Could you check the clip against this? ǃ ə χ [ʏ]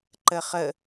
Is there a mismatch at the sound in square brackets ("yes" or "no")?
yes